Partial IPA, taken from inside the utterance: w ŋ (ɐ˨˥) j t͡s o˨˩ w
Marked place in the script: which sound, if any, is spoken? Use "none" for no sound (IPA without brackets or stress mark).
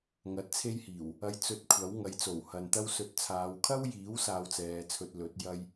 ɐ˨˥